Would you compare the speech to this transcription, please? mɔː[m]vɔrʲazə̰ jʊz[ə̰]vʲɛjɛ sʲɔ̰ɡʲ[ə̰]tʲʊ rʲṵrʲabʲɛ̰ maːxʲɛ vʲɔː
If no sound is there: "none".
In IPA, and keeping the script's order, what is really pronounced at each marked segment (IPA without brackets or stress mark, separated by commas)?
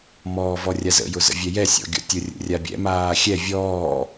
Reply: none, ə̰, ɔ̰